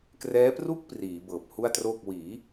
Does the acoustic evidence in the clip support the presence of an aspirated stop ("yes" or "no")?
no